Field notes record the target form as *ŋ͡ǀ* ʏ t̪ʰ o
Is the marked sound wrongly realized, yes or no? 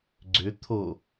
yes